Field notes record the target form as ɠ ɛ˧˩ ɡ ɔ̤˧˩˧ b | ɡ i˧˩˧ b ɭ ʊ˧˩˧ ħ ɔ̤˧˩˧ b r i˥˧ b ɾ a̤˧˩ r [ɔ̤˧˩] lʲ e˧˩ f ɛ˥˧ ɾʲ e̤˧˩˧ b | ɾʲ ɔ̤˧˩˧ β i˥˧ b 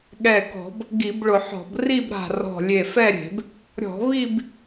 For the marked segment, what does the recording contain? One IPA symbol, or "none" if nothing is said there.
ɔ̤˧˩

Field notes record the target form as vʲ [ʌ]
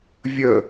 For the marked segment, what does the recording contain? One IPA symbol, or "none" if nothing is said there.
ə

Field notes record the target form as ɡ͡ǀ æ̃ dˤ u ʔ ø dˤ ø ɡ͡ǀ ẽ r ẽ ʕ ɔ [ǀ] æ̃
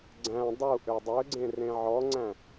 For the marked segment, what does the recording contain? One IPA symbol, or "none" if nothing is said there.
ŋ͡ǀ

